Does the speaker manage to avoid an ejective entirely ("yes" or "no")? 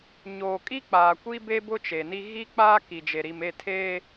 no